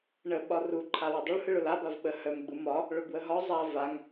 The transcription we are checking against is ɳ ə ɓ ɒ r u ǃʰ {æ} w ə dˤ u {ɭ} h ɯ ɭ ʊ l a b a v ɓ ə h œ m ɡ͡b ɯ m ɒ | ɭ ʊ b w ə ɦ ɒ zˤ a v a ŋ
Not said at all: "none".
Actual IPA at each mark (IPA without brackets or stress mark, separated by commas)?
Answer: a, ɭ